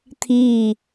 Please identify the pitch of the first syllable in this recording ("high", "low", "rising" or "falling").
falling